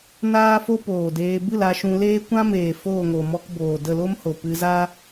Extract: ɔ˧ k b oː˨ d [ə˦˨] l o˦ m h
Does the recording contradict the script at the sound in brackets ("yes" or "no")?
no